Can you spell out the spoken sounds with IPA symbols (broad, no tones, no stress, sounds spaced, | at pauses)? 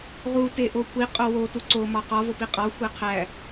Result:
ʁ u t e ʔ o kʷʰ i qʼ o w o t u ǀ o m ɒ q ɒ v o p i qʼ ɒ xʷ e qʰ æ